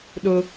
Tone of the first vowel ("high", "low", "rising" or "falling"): high